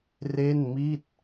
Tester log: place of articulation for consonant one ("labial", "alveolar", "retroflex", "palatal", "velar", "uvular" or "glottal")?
alveolar